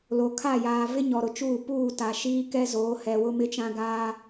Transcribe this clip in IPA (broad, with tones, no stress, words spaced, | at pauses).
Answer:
lo˨kʰa˦˨ jaː˨vɪ˦ ɲɔ˨ɾʊ˨t͡ʃuː˦˨ puː˦˨ta˨ ʃiː˦kɛ˦zoː˨˦hɛ˨ wʊ˦mɪ˦t͡ʃã˦ ɡaː˦